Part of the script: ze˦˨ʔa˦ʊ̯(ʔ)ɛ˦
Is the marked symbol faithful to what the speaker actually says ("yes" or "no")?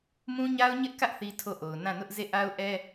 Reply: yes